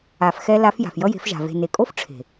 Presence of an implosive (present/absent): absent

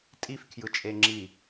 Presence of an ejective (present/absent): present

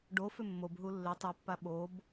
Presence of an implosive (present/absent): present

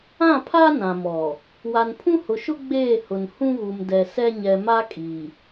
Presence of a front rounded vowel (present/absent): absent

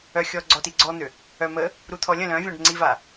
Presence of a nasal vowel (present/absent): present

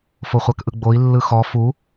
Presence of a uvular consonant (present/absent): present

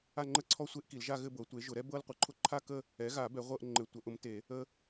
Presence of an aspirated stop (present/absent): present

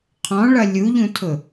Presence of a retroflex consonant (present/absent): present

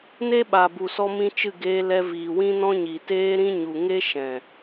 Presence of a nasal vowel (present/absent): present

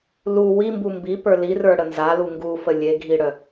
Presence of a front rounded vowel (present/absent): present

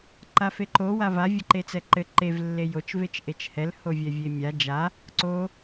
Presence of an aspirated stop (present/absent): absent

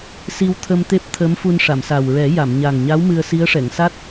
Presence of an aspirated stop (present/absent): present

